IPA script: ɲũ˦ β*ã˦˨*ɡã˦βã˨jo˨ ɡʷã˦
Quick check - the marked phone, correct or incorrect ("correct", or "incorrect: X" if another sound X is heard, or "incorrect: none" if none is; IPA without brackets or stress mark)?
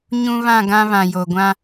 correct